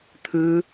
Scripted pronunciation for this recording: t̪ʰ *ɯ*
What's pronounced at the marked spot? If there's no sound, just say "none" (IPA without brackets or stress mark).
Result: ɯ